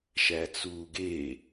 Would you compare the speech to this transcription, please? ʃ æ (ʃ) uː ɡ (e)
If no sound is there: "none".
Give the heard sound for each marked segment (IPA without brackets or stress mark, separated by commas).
t͡s, e